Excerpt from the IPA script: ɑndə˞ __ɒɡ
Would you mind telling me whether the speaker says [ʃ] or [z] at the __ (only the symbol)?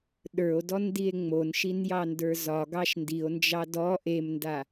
z